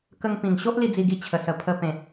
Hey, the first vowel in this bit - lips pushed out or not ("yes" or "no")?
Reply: no